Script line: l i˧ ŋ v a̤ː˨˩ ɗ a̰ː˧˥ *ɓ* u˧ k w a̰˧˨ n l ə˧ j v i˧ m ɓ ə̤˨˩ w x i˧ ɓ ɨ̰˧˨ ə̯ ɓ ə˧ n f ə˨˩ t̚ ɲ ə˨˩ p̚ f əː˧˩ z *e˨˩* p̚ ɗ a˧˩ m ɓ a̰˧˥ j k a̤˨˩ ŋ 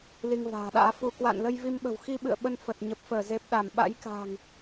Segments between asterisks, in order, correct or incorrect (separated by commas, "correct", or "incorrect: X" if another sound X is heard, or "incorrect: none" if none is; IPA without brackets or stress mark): incorrect: f, correct